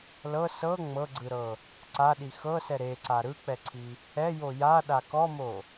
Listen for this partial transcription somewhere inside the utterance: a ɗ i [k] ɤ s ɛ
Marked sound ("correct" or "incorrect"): incorrect